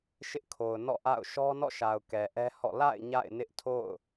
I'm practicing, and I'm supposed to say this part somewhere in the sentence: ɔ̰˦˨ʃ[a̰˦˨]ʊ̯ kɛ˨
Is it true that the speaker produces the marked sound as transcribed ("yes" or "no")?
no